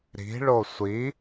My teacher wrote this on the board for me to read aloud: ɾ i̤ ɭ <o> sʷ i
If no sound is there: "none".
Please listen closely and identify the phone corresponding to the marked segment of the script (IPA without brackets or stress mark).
o